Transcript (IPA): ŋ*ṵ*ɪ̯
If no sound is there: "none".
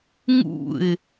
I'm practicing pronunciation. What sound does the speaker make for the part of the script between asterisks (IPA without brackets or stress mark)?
ṵ